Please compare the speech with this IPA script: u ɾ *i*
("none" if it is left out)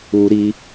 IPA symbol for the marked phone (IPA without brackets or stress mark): i